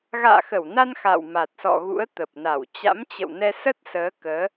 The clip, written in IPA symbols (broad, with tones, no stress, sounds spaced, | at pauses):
ɣ a̰ː˧˨ x ə˧˩ w n a˧ n x a̰˧˨ w m a˨˩ t̚ s ɔ̰˧˨ ɣ ṵ˧˥ ə̯ t̪ ə˨˩ p̚ n a˧˩ w t͡ɕ a̰˧˥ m t͡ɕ ə̰˧˨ w n ɛ˧ s ə˦˥ t̚ s əː˨˦ k əː˨˦